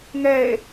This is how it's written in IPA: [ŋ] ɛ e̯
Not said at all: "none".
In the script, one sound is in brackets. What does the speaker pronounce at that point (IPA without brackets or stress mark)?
ŋ